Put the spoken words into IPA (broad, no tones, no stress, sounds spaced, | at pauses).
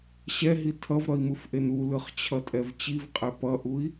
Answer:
ɕ ɛ ɦ i tʰ ʌ v ɾ ʌ i̯ m ɯ f ʔ e n u l ɯ χ t͡ɕʰ ʌ tʼ ɛ v t͡ɕ i v qʼ e p ʌ ʔ u i̯